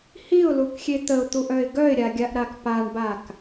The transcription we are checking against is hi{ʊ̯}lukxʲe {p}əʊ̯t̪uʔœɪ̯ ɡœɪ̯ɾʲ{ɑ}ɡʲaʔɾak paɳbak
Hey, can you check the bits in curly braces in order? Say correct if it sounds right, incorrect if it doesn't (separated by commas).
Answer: correct, incorrect, incorrect